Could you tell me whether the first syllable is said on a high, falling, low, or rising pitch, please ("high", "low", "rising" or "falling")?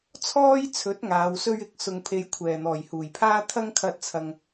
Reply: high